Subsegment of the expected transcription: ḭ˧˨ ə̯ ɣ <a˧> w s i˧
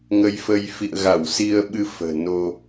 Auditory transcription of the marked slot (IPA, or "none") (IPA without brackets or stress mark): a˧˩